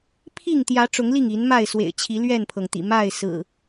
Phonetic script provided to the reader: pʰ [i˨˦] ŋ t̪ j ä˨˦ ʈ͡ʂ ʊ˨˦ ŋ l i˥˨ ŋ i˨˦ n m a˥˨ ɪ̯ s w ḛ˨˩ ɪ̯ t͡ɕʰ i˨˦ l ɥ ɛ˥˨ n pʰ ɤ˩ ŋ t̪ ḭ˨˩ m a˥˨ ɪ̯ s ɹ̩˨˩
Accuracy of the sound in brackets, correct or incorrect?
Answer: incorrect